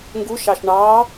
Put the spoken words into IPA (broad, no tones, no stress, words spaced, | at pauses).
ŋɡuʃɑʃ ɳɑ